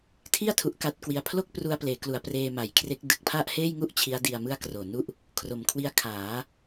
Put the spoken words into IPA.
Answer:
tʰi˥˩a̯ tʰu˦˥ʔka˥˩t̚ kwi˧a̯ pʰlo˥˩k̚pru˧a̯pleː˩˦klu˩˦a̯ preː˧ma˩˦jkʰre˦˥k̚ dɯ˨˩k̚pʰa˥˩ʔheː˥˩jŋu˥˩ʔ t͡ɕʰi˦˥a̯di˧a̯ mɯ˥˩a̯kroː˨˩nu˥˩ʔ | kʰro˨˩mkʰwi˦˥a̯ kʰaː˩˦

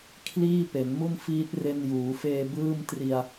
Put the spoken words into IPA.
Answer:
kʰliː˥˩pe˩˦nmu˥˩nfiː˦˥t̚ re˧njuː˩˦feː˧ bɯː˥˩mtri˧a̯

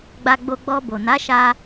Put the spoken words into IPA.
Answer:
ɡ͡ba˧ɡ͡bo˧ ɡ͡bɔ˧bo˨na˨˦ ʃa˧

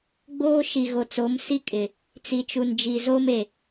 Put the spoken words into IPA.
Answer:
ɡ͡boː˦ʃi˨ɣo˨t͡so˨˦m si˦ kʼɪ˨ | t͡si˨t͡ʃu˨nd͡ʒi˨ zo˦me˨

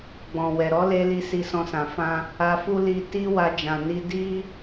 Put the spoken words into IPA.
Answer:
ɡ͡bɔ̃˨wɛ˨ ɾɔ˨˦le˧li˧ si˧sɔ̃˧sã˨ fã˧ | a˧fu˦ li˧ ti˦wa˧d͡ʒã˨ni˧ di˦

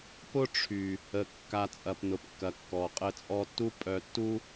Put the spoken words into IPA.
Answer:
pʊ˦ʈ͡ʂʰy˨ | ə˨ kːa˨ t͡sʼɐ˨pnʊ˨pkːɐ˨ kːɔ˨ qʼə˧t͡sʼɔ˧tːu˦ pʼœ˧tːu˦

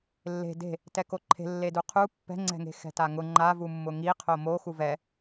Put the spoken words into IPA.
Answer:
lːe̤ de̤ | tɛkoǃʰe̤ lːeduqʰu pːɛ̤ŋ͡ǀɛ̤ŋe̤ xɛ̤taŋʊ ŋ͡ǃavu mːʊŋiqʰo mo xuvɛ

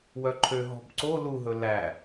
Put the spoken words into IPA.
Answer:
wœǃʰø ɦɔ̤bǀo luɦɵ læ

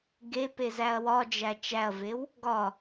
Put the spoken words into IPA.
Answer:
ɡepe zæɐ̯wɒd͡ʒæ t͡ʃæɐ̯vew | ɡɒ

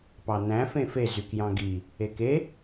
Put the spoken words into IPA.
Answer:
pɑnæ̃ fẽfe zykjɑ̃ɡi | eke

